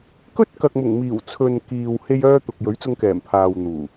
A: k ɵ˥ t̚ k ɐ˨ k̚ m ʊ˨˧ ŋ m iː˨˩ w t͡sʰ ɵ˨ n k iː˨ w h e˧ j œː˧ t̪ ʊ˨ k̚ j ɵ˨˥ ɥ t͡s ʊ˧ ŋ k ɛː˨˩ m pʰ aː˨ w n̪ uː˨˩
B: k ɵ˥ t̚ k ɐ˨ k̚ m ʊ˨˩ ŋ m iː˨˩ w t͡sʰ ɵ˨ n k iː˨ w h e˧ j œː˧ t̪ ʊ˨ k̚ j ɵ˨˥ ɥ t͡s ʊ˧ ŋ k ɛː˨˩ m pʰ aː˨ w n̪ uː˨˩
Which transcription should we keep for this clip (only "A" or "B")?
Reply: B